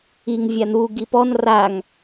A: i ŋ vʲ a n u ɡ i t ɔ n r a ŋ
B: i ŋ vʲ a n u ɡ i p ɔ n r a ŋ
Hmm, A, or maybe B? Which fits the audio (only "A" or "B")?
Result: B